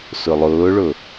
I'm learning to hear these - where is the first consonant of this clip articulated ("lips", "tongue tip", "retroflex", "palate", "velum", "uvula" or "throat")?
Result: tongue tip